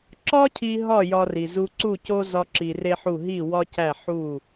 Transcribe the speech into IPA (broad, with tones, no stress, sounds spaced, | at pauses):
ǁ ɒ˥ cʰ i˧ ɦ ɒ˥˩ j ɒ˧ r i˩ z u˧ ǀ u˥˩ c o˥ z ɒ˥ ǁ i˧ r e˥ ħ u˥˩ ɦ i˥˩ w ɒ˥ c æ˥˩ ħ u˥˩